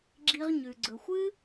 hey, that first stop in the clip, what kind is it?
click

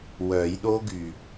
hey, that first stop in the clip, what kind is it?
implosive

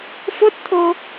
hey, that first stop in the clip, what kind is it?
plain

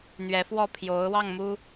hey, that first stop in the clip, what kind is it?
aspirated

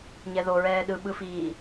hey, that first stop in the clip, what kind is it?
implosive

